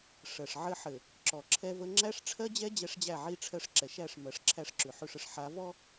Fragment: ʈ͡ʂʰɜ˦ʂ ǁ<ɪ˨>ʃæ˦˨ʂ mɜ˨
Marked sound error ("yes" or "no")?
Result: yes